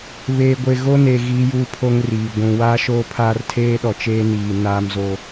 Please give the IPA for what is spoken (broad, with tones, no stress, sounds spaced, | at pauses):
β eː˨ ɡʷ e˨ ɣ o˦ n e˨ ɣ iː˦ j uː˦ pʰ o˦ ŋ r iː˨ ɡʷ ũ˨ w a˦ ʃ oː˦ pʰ aː˦ r tʰ eː˦ ɗ ɔ˨ t͡ʃ eː˦ n iː˨ n aː˦ m z o˦